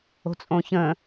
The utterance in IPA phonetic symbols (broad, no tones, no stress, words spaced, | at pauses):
o̤t͡sʼõçə̃